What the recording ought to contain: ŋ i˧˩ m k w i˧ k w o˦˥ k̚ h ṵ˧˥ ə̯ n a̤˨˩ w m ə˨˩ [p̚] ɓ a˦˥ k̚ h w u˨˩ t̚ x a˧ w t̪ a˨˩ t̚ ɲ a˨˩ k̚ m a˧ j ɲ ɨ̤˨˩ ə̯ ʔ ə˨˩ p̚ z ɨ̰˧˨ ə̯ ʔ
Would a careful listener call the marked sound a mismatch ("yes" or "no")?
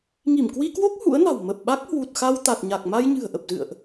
no